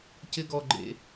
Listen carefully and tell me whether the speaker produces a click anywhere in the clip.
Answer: yes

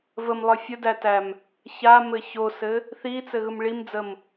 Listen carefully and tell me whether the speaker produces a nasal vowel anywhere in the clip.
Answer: no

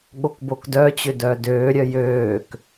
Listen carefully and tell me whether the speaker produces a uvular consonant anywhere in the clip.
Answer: no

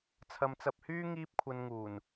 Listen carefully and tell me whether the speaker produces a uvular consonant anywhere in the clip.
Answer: no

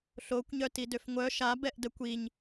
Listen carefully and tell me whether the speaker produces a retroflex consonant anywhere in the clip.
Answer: no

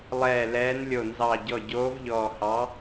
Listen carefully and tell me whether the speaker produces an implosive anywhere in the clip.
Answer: no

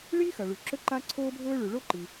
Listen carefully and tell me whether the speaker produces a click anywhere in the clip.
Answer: yes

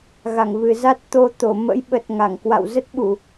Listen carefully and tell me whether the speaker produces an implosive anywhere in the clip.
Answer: yes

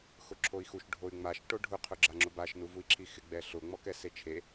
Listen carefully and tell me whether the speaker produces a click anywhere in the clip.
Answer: yes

